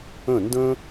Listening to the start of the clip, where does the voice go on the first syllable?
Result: falling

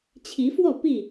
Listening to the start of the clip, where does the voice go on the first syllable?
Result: rising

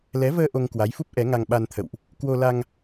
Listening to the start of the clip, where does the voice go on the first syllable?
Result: rising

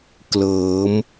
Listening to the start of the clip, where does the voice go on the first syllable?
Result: rising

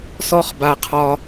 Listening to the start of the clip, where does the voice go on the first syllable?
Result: high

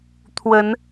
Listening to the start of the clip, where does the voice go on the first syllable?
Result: rising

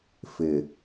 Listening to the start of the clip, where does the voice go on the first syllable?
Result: low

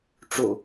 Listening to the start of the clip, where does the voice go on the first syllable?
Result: low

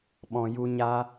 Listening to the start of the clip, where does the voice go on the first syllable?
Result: low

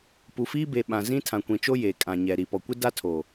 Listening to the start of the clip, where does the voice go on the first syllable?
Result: low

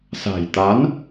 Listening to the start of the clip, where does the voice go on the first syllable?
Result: low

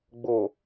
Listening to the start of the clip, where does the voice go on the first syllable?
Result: low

